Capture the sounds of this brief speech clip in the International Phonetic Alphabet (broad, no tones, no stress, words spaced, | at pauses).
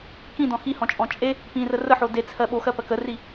kĩdɔ̃ xihɔ̃t͡ʃʼɔ̃ t͡ʃʼe | pĩrə rəħo det͡sʰɜ ɓoxɜpɜ kəri